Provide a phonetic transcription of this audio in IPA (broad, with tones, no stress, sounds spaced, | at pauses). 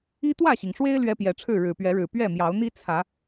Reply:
i˦ t̪ w ä˥˨ ɕ i˩ ŋ ʂ w e˦ ɪ̯ l ɥ ɛ˦ p j ɛ˨˦ ʈ͡ʂʰ ɻ̩˥˨ ɻ ɻ̩˨˩ p ɥ ɛ˨˦ ɻ ɻ̩˨˩ p ɥ ɛ˥˨ m j ɑ˨˦ ʊ̯ n̪ i˦ t͡sʰ ä˨˦